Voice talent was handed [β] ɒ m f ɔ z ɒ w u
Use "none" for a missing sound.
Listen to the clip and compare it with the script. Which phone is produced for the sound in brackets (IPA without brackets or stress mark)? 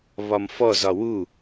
β